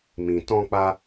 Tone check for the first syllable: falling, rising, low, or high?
low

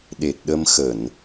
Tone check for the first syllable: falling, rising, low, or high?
low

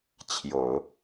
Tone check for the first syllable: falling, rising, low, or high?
low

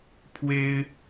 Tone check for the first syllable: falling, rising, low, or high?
high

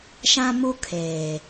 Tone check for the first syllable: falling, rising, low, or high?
high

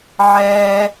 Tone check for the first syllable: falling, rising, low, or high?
high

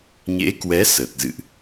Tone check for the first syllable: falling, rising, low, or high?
rising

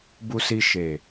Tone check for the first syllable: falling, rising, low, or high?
low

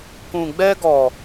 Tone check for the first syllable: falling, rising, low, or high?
low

